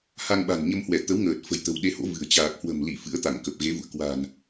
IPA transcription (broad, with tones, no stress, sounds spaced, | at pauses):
h a˧ ŋ ɓ a̤˨˩ n ɲ ə˧ m h w ɛ˧˩ t̪ ə˨˦ w ŋ əː˨˩ t̚ f ə̤˨˩ j t̪ ə̤˨˩ w ɗ e˧ h o̰˧˥ v ɨ̤˨˩ ə̯ t͡ɕ aː˨˩ k̚ h w ə̤˨˩ m l i˧˩ f ɨ̰˧˥ ə̯ t̪ a˧˩ ŋ k ə˨˩ p̚ ɣ e˨˦ v ṵ˧˨ ə̯ k w a̤˨˩ n